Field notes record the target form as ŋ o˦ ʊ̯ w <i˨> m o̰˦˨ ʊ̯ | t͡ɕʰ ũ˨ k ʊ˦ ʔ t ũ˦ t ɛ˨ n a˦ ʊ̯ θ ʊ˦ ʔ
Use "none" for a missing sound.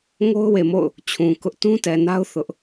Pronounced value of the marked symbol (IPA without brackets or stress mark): e˨